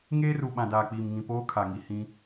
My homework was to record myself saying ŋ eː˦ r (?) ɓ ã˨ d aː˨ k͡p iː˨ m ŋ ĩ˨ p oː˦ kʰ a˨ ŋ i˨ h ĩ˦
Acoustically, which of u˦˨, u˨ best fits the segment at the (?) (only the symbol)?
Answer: u˨